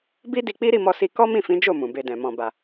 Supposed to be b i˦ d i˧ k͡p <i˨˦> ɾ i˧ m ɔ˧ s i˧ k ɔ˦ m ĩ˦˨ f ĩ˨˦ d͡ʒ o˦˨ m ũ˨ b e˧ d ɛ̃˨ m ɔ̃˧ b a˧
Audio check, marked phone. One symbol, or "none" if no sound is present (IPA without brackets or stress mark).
i˦